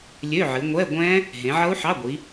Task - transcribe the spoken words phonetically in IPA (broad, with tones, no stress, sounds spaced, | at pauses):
lʲ ø˧˥˧ ʕ ɨ˨˦ ŋʷ ɛ˧˥˧ ɡʷ ɛ̃˦˥ | ɦ ẽ˨˦ ʕ ʌ˦˥ u̯ ħ ɑ˧˥˧ ɡʷ i˨˦